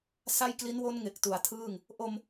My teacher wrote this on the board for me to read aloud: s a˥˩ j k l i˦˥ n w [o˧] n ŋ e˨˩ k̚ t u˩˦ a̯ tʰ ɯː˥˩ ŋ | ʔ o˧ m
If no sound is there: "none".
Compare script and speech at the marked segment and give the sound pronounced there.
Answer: o˦˥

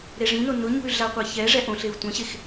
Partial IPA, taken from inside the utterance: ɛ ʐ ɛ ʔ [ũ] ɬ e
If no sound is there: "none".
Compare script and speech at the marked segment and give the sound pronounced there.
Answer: õ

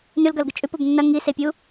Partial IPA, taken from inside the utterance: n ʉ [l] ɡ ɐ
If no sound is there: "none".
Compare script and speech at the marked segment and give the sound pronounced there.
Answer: l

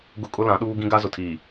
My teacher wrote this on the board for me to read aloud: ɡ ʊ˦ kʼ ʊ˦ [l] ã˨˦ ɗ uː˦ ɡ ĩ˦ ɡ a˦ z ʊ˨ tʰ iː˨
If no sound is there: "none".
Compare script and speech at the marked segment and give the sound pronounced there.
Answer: l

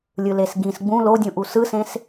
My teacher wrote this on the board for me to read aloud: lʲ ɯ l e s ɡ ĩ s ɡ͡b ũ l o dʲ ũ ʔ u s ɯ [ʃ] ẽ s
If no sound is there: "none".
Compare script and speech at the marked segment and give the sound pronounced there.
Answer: s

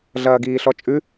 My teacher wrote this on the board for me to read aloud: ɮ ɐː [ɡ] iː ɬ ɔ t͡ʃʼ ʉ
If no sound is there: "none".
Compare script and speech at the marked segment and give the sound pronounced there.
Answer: ɡ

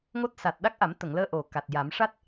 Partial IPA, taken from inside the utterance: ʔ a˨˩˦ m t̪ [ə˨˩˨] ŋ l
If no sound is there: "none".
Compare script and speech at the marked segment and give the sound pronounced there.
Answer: ə˨˩˨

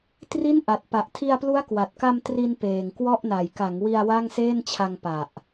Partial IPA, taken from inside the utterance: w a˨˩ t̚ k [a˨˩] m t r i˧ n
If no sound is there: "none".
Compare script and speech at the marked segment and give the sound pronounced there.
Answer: a˧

